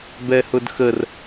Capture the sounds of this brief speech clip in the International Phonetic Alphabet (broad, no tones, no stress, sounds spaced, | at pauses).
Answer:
b ɛ h ʊ d x ə r